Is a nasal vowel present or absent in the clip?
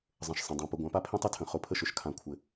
present